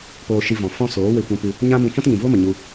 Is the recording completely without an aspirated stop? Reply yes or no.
yes